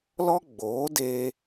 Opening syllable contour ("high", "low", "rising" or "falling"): high